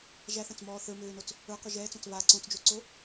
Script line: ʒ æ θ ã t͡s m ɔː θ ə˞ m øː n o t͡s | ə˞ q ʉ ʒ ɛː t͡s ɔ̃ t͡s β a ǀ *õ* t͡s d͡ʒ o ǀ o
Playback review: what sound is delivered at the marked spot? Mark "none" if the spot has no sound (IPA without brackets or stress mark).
õ